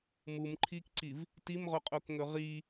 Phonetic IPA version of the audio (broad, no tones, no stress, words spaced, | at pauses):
mumǃʰikǀiv | timʁoqʼokŋɵ ʁi